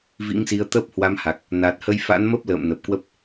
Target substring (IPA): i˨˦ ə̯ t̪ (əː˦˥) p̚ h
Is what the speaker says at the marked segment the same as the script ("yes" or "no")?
yes